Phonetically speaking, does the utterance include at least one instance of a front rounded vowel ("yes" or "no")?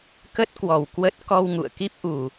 no